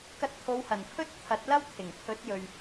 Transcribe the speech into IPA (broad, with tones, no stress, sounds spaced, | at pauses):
k ɐ˧ t̚ t̪ʰ o˨˧ w h ɐ˨˩ n pʰ ɵ˥ t̚ t̪ʰ ɐ˨˥ t̚ l ɐ˥ w t̪ʰ ɪ˨˩ ŋ pʰ ɵ˨˥ t̚ j ɵ˨ ɥ